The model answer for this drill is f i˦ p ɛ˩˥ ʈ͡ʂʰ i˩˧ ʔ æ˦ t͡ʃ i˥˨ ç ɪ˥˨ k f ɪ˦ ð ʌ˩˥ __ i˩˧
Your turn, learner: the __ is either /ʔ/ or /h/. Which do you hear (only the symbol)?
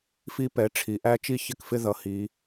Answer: h